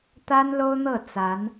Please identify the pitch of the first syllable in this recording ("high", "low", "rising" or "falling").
high